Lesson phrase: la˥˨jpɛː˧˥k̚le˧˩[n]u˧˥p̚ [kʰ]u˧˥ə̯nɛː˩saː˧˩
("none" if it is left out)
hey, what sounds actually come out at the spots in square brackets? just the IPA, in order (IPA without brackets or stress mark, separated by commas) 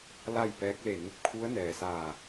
n, kʰ